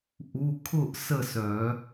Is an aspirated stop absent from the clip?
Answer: no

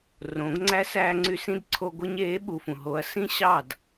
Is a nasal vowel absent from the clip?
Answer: no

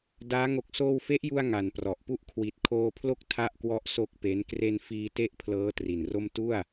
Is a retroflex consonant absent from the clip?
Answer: yes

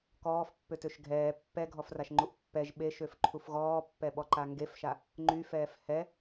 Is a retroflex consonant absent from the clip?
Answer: yes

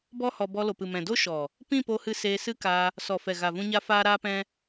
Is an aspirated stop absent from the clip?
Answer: yes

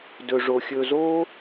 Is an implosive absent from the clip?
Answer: yes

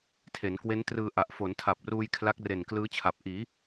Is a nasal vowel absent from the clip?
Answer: yes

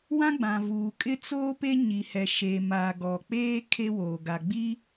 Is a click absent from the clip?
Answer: yes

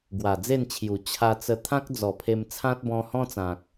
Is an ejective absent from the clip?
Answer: yes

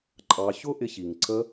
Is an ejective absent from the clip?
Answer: no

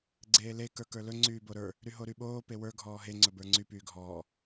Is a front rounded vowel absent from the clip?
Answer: no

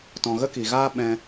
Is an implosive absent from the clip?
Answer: no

